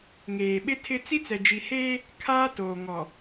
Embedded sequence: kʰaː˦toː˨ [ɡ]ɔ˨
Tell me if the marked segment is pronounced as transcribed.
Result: no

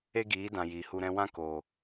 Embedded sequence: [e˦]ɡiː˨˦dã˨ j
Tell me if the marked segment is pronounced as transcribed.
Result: yes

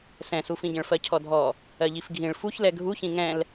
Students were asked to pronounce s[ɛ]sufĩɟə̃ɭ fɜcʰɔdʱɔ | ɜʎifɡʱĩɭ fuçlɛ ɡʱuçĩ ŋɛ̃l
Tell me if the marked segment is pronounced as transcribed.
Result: no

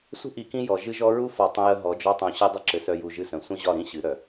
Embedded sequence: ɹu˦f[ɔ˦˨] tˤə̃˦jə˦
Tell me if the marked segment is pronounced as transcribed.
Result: no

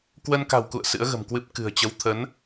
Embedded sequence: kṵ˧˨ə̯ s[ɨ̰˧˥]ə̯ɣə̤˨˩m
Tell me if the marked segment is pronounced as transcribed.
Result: yes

